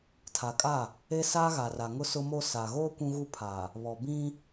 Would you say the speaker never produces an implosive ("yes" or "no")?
yes